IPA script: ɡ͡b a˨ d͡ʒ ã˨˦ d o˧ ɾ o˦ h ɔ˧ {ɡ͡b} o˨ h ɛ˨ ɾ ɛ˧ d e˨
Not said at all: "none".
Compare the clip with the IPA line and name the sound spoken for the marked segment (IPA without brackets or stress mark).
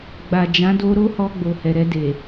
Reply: ɡ͡b